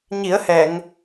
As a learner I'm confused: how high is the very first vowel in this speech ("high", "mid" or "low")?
high